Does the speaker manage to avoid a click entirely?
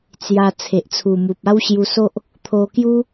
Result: yes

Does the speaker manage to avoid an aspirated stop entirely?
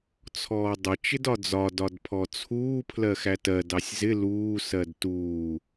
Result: no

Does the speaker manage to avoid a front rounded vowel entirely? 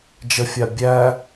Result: yes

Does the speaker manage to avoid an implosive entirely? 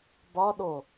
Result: no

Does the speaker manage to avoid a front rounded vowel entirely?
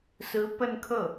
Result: yes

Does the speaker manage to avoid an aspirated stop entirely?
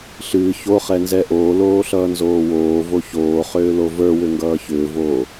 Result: yes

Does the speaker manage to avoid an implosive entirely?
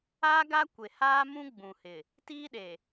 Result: no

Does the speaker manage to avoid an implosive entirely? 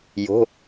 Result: yes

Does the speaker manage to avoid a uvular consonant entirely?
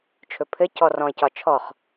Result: no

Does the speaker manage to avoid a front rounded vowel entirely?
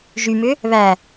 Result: no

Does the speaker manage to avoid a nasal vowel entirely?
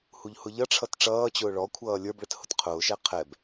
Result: yes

